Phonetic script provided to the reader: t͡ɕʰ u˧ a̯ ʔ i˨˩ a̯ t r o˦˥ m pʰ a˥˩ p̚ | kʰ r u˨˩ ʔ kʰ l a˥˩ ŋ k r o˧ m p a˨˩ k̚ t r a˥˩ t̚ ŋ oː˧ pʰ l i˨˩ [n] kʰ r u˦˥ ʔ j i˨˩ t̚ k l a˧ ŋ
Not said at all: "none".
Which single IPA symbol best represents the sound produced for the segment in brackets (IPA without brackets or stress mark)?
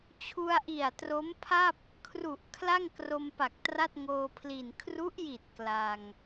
n